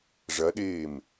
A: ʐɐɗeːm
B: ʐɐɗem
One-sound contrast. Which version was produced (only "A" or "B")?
A